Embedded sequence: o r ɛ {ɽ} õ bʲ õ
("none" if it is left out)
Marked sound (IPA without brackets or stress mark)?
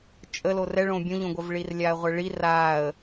ɭ